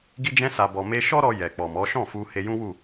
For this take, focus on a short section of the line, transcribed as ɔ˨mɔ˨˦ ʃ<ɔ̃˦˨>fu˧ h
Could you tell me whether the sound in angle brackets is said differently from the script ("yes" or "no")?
no